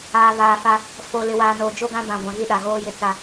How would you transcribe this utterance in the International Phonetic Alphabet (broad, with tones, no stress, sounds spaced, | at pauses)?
aː˨ β aː˨ f a˦ | f o˨ l ɪ˨ w aː˨ n oː˨ d͡ʒ o˦ ɡ ã˦ b ã˨ ɡʷ ã˨ ɣ i˦˨ ɗ a˨ ɣ oː˦ j ɪ˦ t͡s a˦